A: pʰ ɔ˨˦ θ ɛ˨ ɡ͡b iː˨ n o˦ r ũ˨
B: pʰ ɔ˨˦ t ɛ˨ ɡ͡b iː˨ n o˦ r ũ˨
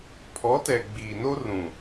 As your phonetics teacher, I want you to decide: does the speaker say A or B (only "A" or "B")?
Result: B